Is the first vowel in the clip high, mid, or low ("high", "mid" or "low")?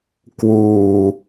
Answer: high